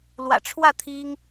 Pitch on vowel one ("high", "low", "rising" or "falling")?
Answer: low